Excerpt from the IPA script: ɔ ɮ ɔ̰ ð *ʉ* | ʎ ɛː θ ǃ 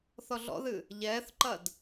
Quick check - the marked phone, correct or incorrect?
incorrect: ɨ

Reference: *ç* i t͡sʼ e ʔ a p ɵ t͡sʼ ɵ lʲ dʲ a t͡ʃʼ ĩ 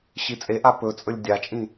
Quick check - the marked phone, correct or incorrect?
incorrect: ɕ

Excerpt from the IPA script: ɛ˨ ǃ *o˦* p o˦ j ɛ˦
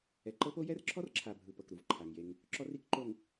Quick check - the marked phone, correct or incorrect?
incorrect: ɤ˦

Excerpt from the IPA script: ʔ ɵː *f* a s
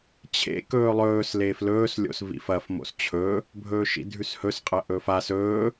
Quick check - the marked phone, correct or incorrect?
correct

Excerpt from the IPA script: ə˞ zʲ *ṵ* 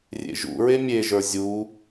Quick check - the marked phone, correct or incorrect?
incorrect: u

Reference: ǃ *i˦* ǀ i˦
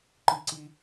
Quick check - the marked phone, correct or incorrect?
correct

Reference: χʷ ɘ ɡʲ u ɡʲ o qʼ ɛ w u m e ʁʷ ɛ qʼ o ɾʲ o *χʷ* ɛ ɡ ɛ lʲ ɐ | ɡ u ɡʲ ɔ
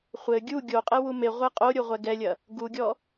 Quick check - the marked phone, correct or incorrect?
incorrect: ʁʷ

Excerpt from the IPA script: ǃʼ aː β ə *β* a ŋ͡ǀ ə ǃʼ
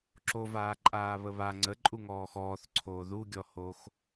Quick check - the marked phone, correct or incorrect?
correct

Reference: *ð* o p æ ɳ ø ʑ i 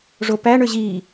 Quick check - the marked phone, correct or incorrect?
incorrect: ʐ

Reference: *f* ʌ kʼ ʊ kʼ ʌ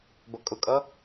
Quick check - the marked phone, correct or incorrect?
incorrect: b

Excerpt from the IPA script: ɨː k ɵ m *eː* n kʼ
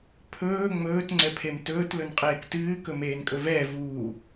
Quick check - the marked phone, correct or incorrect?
correct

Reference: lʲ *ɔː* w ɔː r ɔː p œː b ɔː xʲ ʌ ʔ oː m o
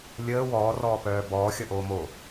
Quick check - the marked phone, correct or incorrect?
incorrect: əː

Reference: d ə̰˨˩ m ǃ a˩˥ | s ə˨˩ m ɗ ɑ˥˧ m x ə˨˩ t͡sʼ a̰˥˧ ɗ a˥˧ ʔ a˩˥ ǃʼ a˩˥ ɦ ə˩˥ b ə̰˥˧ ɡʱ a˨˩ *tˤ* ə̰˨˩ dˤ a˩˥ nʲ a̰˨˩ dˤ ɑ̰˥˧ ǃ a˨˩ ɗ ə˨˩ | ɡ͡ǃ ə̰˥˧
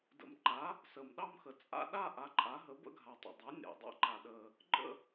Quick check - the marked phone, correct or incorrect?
correct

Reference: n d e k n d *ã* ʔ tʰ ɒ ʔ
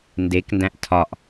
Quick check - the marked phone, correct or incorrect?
incorrect: æ̃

